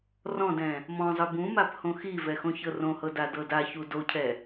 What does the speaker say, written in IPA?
r ɔ̃ d ɛ̃ | m ɔ̃ zˤ ɯ b ũ m a p h õ x i v ɛ x õ ç ɤ r õ h ɤ d a d ɤ d a ç u d o cʰ ɛ

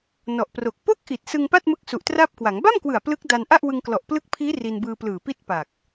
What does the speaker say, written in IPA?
n ɔ˨˩ ʔ p r o˨˩ k̚ p o˥˩ k̚ ʔ i˨˩ t̚ s ɯ˧ ŋ p a˥˩ t̚ m ɯ˦˥ k̚ s u˨˩ ʔ t r aː˥˩ p̚ k w a˩˦ ŋ b a˥˩ m k w ɯ˨˩ a̯ p l ɯ˦˥ k̚ d a˧ n ʔ a˥˩ ʔ w ɯ˧ ŋ k l ɔ˨˩ ʔ p l ɯ˦˥ k̚ pʰ iː˦˥ r i˧ n b ɯː˧ p l ɯː˨˩ p i˥˩ t̚ p a˨˩ k̚

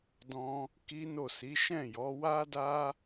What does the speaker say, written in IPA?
d ɔ̃˦ | k i˦ n o˦˨ s i˨˦ ʃ ɛ̃˦˨ j ɔ˨˦ w a˦ d a˦

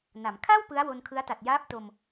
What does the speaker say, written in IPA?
n a˩˦ m kʰ a˥˩ w p ɯ˦˥ a̯ w o˧ n kʰ ɯ˦˥ a̯ t a˨˩ t̚ j aː˦˥ p̚ t o˧ m

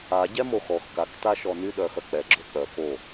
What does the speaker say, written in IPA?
a ɟ ɛ m o x ɔ x k a k t a ʃ ɔ n y ɗ œ x œ k͡p ɛ ɡ͡ǁ o k͡p œ k o

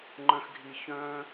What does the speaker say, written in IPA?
ŋ͡ǃ œ̃˦ x ɡʱ i˦ ç œ̃˥

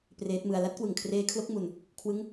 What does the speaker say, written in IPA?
p r eː˦˥ t̚ m ɯ˧ a̯ l a˦˥ t̚ k w ɯ˨˩ ŋ kʰ r eː˧ kʰ l o˦˥ k̚ m u˧ n | kʰ w ɯ˦˥ ŋ

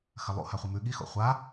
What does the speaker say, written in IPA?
x ɐ lˠ ṵ h a χʷ ɨ m ʉ ɠ i x o̰ χʷ a

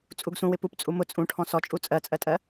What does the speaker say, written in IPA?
t͡sʼ u ɡ s ũ w ɪ p u p t͡sʼ u m ʊ t͡sʼ ũ ʈʰ ɔ̃ s ɔ t͡ʃʼ u t͡sʼ ɜ t͡sʼ ɜ tʼ ɜ

